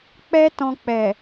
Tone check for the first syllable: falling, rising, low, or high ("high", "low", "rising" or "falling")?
high